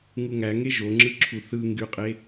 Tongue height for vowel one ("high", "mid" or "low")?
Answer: high